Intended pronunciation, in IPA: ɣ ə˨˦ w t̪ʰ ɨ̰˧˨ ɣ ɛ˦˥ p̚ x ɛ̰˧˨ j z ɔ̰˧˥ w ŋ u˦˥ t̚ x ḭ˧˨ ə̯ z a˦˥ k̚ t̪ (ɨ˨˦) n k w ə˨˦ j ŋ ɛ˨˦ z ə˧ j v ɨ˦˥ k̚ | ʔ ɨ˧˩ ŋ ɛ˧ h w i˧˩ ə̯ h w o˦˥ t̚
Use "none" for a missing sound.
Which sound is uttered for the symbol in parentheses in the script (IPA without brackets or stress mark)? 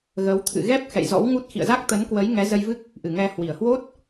ə˨˦